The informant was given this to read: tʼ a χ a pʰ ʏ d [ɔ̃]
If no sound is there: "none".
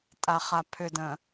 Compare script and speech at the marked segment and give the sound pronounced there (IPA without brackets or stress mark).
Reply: ə̃